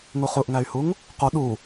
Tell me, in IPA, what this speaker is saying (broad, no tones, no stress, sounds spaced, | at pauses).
ŋ u χ u ʔ ŋ æ y̯ h u ŋ | q u ɗ u